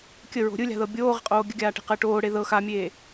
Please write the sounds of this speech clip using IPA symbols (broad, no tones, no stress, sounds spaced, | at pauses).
kʲ ə ɹ o̤ ɾʲ ɯ lʲ a̤ ð ɤ bʲ oː ʁ ə̤ qʼ oː ɡʲ ə ɡʲ aː ʈ e̤ q əː ʈ oː ɽ e ð ɤ x a mʲ eː